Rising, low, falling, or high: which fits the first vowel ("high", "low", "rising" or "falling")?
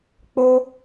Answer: high